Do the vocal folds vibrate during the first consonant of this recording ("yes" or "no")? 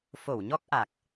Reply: no